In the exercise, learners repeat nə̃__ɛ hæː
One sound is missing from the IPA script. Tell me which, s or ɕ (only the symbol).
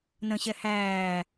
ɕ